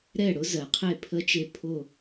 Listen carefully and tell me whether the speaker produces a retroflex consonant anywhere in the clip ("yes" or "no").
yes